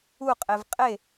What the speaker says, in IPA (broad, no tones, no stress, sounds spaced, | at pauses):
u qʼ e v qʼ e